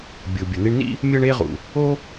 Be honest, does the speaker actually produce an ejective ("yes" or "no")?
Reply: no